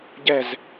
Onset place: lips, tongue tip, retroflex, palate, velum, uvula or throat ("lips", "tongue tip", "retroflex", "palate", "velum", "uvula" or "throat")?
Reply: palate